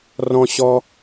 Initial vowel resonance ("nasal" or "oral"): nasal